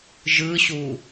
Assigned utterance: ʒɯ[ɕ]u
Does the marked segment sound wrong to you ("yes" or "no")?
no